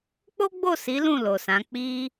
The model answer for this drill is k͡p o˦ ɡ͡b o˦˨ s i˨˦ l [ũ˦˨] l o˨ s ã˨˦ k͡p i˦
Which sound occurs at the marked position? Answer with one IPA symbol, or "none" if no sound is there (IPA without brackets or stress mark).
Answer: ũ˦˨